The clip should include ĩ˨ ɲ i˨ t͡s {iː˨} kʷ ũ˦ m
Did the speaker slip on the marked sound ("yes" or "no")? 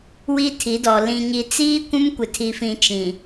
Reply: yes